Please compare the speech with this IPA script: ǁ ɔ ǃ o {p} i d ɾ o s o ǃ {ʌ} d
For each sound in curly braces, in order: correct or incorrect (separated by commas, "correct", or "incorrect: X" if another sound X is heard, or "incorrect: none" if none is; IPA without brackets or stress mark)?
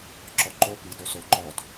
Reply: correct, incorrect: ɔ